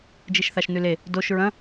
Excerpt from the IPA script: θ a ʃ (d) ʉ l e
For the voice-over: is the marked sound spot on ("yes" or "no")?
no